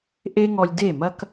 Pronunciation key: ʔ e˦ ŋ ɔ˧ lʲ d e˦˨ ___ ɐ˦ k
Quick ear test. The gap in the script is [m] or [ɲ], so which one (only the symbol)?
m